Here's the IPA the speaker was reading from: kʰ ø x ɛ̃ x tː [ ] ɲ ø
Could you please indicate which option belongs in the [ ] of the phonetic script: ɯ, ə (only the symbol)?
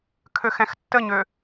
ə